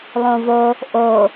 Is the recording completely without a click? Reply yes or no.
yes